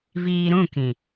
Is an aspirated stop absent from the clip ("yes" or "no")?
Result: yes